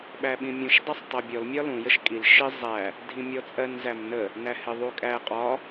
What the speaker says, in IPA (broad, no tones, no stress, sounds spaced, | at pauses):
ɓ æ ɓ ĩ mʲ ũ ʃ dˤ æ sˤ tˤ ɜ bʲ ɔ l mʲ ɒ l ũ j ə ʃ kʼ i l ʃ ɪ zˤ æ | dʱ ĩ mʲ ɔ t͡sʼ ɜ n z æ m n ə | n æ h ɪ ðˤ u kʼ æ qʼ ɒ